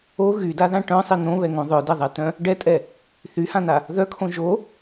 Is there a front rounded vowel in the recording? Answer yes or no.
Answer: yes